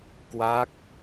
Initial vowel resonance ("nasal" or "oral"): oral